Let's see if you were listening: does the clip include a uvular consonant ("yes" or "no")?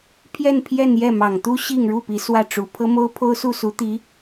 no